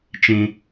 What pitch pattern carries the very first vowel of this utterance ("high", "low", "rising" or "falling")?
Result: high